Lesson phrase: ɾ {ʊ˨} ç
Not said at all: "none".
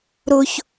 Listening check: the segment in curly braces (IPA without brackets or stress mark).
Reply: ʊ˨